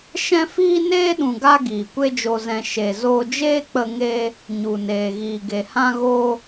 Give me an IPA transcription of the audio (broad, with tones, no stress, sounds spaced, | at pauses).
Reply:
ʃ ɛ̃˦ f iː˦ n eː˦ ɗ ũ˨ ɡ a˧ ɡ iː˨ kʷ e˦ d͡ʒ o˧ z ɛ̃˧ ʃ e˨ z oː˧ d͡ʒ eː˦ k͡p ə˧ ŋ e˧ | ɲ u˨ n eː˨ ɣ iː˨ ɡ e˨ h ã˧ ɣ o˧